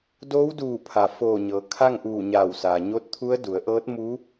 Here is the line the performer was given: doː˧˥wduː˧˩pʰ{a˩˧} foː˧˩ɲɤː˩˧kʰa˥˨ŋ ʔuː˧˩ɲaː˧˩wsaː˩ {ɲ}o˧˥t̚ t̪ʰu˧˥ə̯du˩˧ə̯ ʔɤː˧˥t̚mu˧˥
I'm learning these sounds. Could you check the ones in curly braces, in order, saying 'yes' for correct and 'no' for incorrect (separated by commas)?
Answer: no, yes